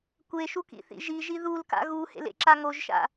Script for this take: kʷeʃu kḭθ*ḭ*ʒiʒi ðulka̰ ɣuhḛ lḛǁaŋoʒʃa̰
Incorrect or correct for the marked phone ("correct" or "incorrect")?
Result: correct